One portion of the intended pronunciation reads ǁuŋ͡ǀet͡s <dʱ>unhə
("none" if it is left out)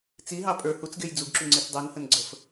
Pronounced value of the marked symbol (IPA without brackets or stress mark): dˤ